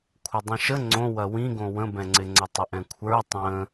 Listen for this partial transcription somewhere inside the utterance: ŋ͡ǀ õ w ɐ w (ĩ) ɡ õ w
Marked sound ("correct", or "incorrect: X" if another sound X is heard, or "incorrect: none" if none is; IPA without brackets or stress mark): correct